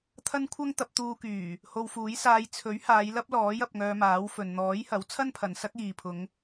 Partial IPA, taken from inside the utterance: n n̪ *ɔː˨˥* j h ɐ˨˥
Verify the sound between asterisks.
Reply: correct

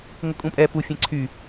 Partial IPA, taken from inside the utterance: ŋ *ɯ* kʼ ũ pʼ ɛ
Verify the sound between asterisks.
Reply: incorrect: ʊ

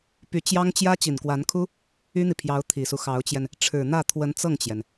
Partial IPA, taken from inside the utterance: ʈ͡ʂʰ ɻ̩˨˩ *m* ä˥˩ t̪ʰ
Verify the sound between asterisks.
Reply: incorrect: n̪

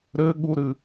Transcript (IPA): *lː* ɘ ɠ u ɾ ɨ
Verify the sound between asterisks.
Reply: incorrect: ɾ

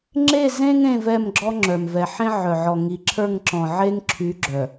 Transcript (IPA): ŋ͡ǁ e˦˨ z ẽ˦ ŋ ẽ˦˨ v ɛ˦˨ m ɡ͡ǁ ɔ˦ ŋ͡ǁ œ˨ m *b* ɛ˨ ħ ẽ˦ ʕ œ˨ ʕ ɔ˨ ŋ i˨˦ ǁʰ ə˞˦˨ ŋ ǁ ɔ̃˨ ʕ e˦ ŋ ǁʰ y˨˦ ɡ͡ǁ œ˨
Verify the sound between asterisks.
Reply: incorrect: v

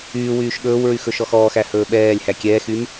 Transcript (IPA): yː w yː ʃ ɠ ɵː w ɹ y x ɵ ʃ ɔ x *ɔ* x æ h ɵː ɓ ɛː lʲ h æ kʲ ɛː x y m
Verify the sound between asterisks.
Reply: incorrect: ɔː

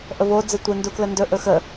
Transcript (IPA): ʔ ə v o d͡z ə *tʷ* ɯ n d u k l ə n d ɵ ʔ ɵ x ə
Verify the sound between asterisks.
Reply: correct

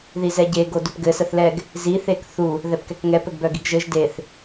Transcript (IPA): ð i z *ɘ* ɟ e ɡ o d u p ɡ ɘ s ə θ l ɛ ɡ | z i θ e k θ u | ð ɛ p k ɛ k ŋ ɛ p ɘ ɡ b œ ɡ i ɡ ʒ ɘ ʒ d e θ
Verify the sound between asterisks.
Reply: incorrect: ɛ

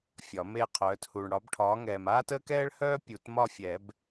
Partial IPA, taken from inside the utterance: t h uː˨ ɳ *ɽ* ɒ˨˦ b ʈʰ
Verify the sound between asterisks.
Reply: correct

